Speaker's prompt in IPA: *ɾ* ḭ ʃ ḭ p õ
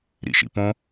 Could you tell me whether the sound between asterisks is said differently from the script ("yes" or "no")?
no